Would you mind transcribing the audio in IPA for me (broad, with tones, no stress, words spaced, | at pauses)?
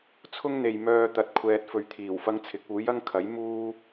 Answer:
t͡sʰʊ˥ŋn̪e˨jmœː˧ t̪ɐ˨t̚ kʷʰɛː˨t̚fɵ˨ɥ t̪ʰiː˨˩wfɐ˥ŋt͡sʰɪ˨˥k̚ uː˨˥jɐ˥ŋkʰɐ˨˥j muː˥